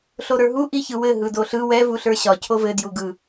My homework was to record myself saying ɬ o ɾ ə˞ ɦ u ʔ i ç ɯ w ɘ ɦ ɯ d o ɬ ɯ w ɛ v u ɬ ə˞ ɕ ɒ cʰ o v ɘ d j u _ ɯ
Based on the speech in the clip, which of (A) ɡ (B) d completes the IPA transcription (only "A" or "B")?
A